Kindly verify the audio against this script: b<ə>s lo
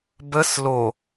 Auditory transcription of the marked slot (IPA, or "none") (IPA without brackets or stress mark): ə